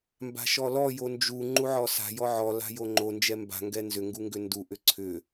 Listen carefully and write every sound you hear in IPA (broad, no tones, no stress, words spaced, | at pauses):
mba̤ʃɔlɔ jond͡ʒu ŋ͡ǃuʕɔsa̤ jɔʕɔ la̤joŋ͡ǃo nd͡ʒɛmba̤ ŋɡɛnzʏ ŋɡuŋɡʏndu ʔʏǀʰʏ